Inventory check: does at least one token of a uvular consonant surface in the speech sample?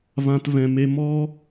no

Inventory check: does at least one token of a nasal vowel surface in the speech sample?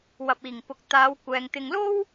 no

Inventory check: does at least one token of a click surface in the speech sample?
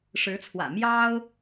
no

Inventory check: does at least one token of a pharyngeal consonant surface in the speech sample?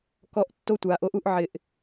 yes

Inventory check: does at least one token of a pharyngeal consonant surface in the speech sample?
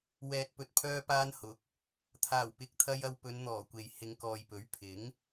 no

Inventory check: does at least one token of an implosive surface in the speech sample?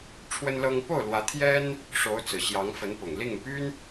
no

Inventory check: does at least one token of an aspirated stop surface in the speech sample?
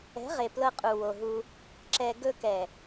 no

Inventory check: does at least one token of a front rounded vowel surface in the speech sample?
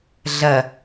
no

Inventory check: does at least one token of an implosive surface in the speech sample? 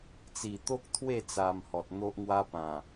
no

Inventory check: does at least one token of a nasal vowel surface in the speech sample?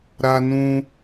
yes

